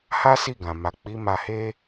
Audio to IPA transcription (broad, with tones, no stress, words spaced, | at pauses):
ha˦si˦˨ɡã˨ ma˨ k͡pi˨˦ma˧he˦